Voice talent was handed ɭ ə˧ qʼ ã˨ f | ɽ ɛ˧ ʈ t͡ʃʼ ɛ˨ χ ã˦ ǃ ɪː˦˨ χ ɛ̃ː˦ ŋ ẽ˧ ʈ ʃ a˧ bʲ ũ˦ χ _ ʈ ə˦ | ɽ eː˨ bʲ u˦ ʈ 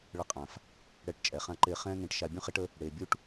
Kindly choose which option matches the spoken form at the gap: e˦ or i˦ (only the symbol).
e˦